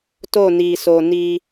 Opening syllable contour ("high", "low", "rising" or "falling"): falling